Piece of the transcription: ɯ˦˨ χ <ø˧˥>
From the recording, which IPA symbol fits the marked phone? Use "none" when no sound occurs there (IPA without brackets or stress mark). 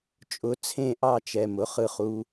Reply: u˧˥